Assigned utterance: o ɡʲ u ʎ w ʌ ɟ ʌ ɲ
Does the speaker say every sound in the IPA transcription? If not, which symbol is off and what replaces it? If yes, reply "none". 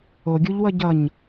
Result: none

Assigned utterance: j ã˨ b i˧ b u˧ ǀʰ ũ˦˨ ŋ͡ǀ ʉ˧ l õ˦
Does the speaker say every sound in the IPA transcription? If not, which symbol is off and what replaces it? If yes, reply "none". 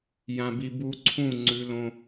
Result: i˧ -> i˨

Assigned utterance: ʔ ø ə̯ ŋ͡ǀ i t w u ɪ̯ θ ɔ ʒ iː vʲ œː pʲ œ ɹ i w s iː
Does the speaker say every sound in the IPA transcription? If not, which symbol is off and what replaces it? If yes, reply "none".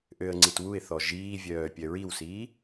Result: none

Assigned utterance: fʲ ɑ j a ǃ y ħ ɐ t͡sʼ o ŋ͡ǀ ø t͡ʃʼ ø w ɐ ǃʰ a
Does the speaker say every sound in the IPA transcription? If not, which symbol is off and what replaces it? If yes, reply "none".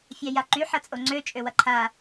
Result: none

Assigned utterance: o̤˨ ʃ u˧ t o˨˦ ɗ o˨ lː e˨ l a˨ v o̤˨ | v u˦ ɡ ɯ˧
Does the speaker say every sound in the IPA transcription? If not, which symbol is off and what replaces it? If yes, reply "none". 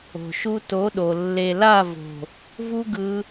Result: a˨ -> a˦˨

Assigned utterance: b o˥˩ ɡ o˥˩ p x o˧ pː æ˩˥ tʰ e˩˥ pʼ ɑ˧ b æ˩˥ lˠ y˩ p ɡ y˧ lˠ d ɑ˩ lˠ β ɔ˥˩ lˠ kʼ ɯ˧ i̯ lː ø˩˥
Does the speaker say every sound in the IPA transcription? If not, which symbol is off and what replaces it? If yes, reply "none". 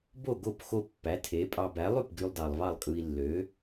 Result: ɔ˥˩ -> ɑ˥˩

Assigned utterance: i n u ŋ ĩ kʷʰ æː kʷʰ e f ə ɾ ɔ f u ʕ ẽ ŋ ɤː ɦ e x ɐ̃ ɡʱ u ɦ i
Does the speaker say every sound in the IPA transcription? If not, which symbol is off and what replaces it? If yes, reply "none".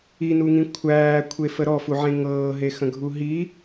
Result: ɐ̃ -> ə̃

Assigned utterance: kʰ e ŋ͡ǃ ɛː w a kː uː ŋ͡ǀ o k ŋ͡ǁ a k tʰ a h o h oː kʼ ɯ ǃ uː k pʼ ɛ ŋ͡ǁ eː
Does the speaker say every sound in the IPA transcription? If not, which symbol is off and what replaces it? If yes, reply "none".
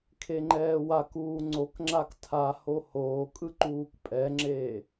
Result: kː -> k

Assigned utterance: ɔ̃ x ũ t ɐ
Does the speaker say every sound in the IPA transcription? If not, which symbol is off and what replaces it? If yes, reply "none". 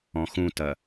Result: none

